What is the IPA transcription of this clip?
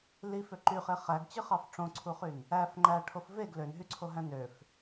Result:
l i f ø ǃ y χ e χ æ ɡ t͡ɕ ɯ χ ɑ f ʈ͡ʂ õ ǀʰ u χ y n | æ f ŋ͡ǃ æ ʈʰ o f v e ɡ l ø n ɦ y ǀʰ o ɦ æ̃ n ø f

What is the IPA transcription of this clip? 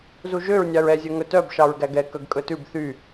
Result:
z u ʒ ø ɹ nʲ ɑ ɹ ɛ zʲ œ ŋ ɵ t œ b ʃ ɑ ɹ ɡ æ ɡ ɛ k œ ɡ kʼ ɵ t ʉ b θ y

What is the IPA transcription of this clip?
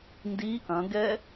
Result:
n d i ʔ ɐ̃ ɡ ɛ

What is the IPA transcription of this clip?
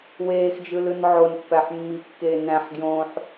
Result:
w eː x d͡ʒ ɯ l ɯ n ʕ o n pː æ ħ mː i kː eː n æ̃ ħ ɡ j õː ħ

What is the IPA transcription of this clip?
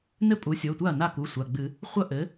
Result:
n ɘ˥˩ pʼ u˩˥ sʲ o˩˧˩ tʷ a˥˩ ɐ̯ n a˥˩ k u˩˧˩ sʷ a˩˧˩ ɡ͡b ɨ˨˩˦ | χʷ ɐ˥˩ ʔ ɘ˩˥

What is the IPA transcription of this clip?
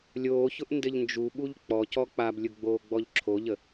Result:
lʲ oː ç ʊ ʔ n d ɘ ʎ n d͡ʒ u ɓ u ʎ k͡p ɔ c ɔ k͡p a b lʲ ʊ ɡ͡b oː ɡ͡b ɔ ʎ ǁʰ o ʎ ə

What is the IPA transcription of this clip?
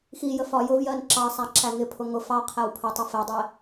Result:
x i j ə f ɒ j ʊ v j ɜ n ǁ ɑ sˤ æ ǁ æ ŋ ɪ pʰ ʊ ŋ ʊ f ɑ qʰ æ w pʰ ə tˤ ə f ɛ dˤ ɛ

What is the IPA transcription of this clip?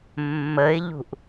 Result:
mː ə ɪ̯ ʎ ṳ ʔ

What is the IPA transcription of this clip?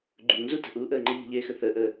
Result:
ɡ͡ǃ u ŋ z u t ə̤ ʔ uː ʔ əː ŋ͡ǃ ə ʎ ə̤ ʎ eː x ə θ əː ʔ əː

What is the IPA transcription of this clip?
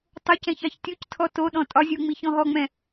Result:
tˤ o c ɛ̃ ç ɑ ç tʲ o c tʰ ɔ t o ɗ ɔ̃ tʼ ɒ zʲ u ŋ͡m i ç ɔ̃ ɦ ɔ ŋ͡m ɛ̃

